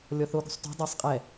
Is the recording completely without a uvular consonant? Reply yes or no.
no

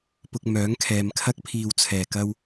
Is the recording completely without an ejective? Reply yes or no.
yes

